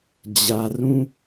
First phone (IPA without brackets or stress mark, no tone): d͡ʑ